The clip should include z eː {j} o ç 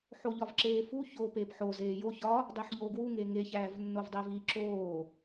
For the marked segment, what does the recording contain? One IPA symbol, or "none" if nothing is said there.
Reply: j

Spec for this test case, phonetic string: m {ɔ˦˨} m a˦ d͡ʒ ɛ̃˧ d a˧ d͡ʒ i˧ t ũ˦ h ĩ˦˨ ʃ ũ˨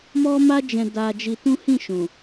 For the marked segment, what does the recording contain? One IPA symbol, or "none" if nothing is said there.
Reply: ɔ˦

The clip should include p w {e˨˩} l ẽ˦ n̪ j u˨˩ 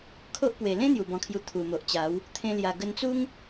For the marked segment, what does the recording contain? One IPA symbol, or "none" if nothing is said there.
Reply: e˨˩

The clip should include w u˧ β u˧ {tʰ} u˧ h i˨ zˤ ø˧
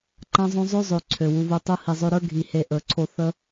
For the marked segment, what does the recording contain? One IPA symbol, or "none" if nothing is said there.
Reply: tˤ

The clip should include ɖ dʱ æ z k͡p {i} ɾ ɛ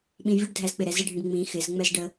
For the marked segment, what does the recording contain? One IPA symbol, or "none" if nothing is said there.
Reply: ɪ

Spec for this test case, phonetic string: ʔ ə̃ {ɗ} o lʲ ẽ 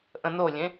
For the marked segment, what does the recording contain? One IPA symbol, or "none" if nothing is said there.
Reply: n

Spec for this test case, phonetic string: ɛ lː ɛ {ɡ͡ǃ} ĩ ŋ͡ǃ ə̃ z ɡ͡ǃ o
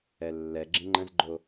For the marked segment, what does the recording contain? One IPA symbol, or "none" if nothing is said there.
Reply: ɡ͡ǁ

